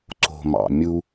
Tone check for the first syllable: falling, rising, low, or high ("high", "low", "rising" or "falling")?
low